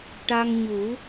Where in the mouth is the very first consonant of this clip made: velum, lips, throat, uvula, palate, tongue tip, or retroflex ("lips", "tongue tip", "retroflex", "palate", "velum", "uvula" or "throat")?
retroflex